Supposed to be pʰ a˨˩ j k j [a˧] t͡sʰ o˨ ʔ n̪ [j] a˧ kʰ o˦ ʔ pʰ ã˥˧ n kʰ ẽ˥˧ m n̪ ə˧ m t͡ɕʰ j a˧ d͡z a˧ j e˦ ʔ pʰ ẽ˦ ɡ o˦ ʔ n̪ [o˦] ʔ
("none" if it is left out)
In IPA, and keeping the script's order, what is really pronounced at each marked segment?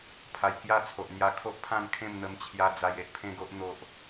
a˥˧, j, o˦

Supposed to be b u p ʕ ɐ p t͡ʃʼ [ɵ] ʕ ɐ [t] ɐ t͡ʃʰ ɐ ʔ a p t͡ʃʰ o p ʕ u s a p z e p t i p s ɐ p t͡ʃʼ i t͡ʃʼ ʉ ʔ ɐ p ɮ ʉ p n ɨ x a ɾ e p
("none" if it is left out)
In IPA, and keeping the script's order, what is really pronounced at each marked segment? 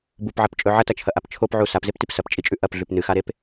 ɵ, t

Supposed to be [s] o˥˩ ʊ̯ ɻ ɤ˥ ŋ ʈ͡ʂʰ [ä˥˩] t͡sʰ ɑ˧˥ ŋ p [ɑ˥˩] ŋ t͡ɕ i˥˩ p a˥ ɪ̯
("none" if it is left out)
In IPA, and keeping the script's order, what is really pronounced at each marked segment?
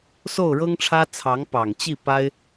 s, ä˥, ɑ˨˩

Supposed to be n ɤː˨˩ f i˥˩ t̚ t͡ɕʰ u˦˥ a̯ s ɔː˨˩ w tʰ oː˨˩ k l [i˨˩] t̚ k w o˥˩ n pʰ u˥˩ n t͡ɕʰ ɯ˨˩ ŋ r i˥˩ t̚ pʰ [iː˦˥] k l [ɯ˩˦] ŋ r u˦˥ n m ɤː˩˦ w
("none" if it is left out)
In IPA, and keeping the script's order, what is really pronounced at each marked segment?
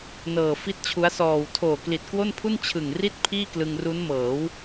i˨˩, iː˥˩, ɯ˧

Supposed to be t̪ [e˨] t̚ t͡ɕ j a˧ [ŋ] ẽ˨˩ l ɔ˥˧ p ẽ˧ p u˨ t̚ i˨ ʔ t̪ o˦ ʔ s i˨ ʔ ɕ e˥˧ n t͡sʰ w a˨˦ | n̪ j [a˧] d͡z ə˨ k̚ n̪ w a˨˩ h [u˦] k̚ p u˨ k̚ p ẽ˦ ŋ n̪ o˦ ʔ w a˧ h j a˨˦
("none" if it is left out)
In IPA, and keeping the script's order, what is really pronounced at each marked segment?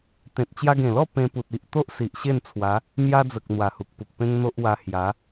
ẽ˨, ɡ, a˧, u˨

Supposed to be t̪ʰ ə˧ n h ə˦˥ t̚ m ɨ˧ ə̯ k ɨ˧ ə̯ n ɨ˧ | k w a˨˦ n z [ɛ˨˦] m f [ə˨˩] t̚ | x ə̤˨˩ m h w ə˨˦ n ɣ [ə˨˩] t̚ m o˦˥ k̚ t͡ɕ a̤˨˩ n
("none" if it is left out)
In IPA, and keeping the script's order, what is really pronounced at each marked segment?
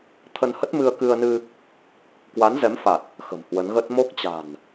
ɛ˨˦, a˨˩, ə˦˥

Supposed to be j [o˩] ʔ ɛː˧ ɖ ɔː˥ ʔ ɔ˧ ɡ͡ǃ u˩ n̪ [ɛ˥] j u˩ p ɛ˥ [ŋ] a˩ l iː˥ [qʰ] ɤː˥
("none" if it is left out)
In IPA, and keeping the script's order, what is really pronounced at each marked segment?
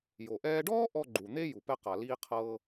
o˩, e˥, q, qʰ

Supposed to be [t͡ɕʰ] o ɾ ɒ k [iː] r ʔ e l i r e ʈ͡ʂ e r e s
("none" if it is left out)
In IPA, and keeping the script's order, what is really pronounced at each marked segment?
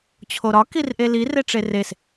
t͡ɕʰ, i

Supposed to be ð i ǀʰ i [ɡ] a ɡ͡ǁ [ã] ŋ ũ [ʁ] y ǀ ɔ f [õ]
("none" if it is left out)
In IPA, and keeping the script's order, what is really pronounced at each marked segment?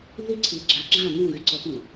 ɡ͡ǁ, ã, ɣ, ũ

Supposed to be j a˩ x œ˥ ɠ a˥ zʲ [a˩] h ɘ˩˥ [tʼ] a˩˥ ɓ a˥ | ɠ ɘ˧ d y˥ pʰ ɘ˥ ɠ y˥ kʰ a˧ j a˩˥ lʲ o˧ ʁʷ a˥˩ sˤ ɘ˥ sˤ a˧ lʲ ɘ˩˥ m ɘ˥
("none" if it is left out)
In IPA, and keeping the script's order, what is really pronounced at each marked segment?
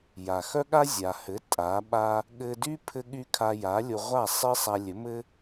a˩, tʼ

